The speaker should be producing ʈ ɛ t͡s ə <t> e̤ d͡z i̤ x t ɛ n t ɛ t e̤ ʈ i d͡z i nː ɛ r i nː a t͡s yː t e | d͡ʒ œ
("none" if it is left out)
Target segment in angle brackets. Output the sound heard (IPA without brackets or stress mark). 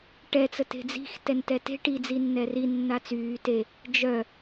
t